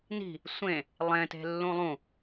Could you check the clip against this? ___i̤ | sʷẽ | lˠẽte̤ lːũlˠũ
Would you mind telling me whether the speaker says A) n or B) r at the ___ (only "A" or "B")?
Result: A